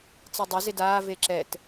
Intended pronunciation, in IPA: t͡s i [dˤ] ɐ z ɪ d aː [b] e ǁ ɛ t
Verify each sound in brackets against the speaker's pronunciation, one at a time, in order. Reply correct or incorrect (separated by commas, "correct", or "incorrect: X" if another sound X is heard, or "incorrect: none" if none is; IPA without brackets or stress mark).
correct, incorrect: v